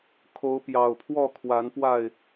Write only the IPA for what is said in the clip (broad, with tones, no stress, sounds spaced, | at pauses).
kʰ o˨˦ ʊ̯ p j ɑ˨˩ ʊ̯ pʰ w ɔ˥˨ kʰ w a˨˦ n p w a˥˨ ɪ̯